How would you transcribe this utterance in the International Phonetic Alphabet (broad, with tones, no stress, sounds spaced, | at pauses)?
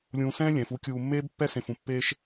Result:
lʲ ũː˧ s ɛ̃ː˥ lʲ ɛ̃ː˩˧ f u˥ kʲ uː˧ mː eː˥ b pː ɛ˥ s ẽ˧ f ũ˩˧ pː eː˥ ʃ